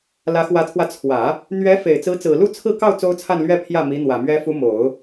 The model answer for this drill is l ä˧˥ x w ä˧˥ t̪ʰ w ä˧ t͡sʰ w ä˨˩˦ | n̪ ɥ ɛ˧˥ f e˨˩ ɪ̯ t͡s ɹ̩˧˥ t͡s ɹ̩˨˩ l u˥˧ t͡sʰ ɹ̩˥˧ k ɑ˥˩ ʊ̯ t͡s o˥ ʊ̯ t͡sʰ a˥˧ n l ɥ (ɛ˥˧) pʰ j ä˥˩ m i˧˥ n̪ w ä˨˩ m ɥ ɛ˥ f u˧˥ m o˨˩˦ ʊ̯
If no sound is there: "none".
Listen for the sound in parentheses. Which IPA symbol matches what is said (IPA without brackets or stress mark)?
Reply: ɛ˥˧